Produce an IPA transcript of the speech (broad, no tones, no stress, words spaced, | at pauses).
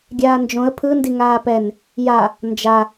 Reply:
ɡʲaːnd͡ʒõə̯ pʰɯndi ŋaːpɛn | ja | nd͡ʒa